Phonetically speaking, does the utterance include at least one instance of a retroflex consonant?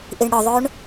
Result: yes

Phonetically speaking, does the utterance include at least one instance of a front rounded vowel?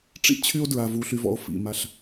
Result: yes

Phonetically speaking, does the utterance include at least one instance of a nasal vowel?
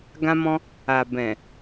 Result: yes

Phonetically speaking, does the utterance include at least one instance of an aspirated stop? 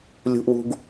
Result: no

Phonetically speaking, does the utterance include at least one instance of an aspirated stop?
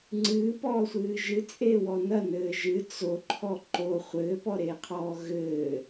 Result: yes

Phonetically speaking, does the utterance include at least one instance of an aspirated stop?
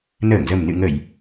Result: no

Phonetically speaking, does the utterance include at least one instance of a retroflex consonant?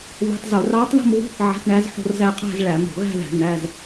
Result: yes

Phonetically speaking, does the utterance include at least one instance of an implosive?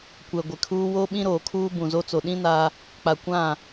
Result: yes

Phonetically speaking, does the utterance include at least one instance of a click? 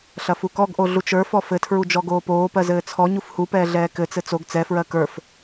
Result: no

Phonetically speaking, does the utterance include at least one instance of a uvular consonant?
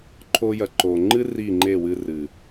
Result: no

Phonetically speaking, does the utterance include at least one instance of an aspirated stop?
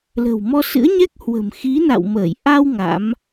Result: no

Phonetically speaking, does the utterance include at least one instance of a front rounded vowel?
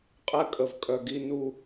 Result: yes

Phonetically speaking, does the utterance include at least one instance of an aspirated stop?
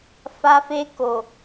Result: no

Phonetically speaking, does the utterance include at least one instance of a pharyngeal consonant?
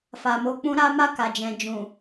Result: no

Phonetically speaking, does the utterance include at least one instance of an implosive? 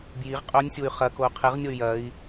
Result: no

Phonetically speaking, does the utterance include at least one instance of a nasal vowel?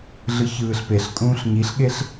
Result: yes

